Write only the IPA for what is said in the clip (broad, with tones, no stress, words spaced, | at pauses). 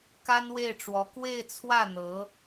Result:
ka˥nwe˥˩ɪ̯ʈ͡ʂwɔ˧˥ kwe˥˧ɪ̯t͡sʰwä˥˩ n̪ɤ˧˥